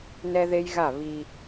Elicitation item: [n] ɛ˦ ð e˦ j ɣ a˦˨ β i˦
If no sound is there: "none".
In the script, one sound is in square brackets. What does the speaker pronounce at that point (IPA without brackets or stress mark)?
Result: n